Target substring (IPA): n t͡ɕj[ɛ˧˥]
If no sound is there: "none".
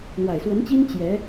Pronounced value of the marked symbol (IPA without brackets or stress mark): ɛ˧˥